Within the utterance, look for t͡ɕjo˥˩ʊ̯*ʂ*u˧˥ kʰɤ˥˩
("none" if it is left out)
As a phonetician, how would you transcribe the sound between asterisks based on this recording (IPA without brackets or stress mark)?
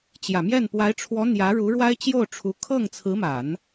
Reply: ʈ͡ʂʰ